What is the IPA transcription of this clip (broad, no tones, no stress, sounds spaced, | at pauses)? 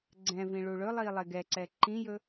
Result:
ɡ͡ǀ ɛ̃ v ĩ ɭ u ɭ ɵ lˠ i lˠ e ɡ ɛ ǀ ɛ ǃ ĩ j ɵ